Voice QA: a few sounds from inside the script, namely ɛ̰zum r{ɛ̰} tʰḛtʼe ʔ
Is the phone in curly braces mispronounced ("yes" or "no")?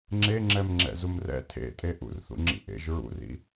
no